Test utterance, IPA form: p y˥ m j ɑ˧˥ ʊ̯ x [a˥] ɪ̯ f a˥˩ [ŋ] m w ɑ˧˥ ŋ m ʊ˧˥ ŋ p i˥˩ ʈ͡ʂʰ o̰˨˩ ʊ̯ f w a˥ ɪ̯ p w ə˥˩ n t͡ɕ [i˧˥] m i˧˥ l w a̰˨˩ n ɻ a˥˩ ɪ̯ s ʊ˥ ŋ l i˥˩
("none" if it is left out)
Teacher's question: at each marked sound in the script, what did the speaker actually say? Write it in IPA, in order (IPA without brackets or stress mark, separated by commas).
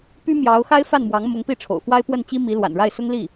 a˥, n, i˥